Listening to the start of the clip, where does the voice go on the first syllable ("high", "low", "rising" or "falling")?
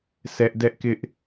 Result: high